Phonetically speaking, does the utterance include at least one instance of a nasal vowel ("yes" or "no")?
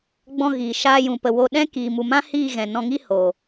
yes